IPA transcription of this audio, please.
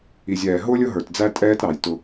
i˨ zʲ ɛː˨ ɦ ʊː˦ lʲ ʊ˦ ɦ ə˞˨ t d͡z æ˦ tʼ ɛː˦ t ɾ ɑ˨ j t ʊ˦

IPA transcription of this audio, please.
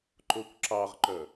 ǃ o kʷ ǁ ɑ ʁ ǃ œ

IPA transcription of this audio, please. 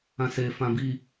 ã s e f ã b i

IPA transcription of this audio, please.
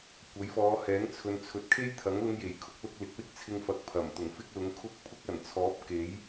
kʷ ɐ˨˥ j f ɔː˨˧ h ɛː˨˥ ŋ t͡sʰ ɵ˨ n t͡sʰ ɵ˨˥ t̚ kʰ e˥ j t̪ʰ ɐ˨˥ ŋ l ʊ˧ ŋ j e˨˩ j kʰ ʊ˨˥ k̚ l ʊ˧ k̚ l ɪ˨˥ k̚ w ɪ˥ k̚ t͡sʰ ɪ˧ ŋ f ɐ˨˥ k̚ pʰ ɐ˨˩ m t̪ ʊ˨˩ ŋ f ɪ˥ k̚ l ʊ˨˥ ŋ kʰ ʊ˥ k̚ pʰ ʊ˥ k̚ ɐ˨˩ n t͡sʰ ɔː˨˥ p̚ k e˨˥ j

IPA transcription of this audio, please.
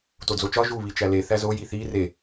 t o d͡z o t͡ʃ ɒ ʒ u β i t͡ʃ æ l e θ æ z o j i θ i r e

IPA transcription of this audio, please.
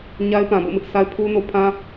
ɲ a˦ ɪ̯ p ã˨ b o̰˦˨ m ɪ˦ ʔ s a˦ ɪ̯ pʰ u˦ n o˦ pʰ ã˦

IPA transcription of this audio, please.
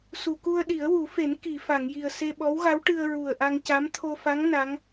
s u˨˩˨ k u˧ ə̯ ɗ i˨˩˦ ə̯ w u˨˩˦ f e˨˩˦ n k i˨˩˨ f a˨˩˨ ŋ j i˨˩ ə̯ s e˧ ɓ ɔ˧˥ w ɣ a˧˥ w ʈ ɨ˧ ə̯ ɹ u˨˩ ə̯ ʔ a˧ ŋ c a˧˥ m t̪ʰ o˧ f a˧˥ ŋ n a˧˥ ŋ

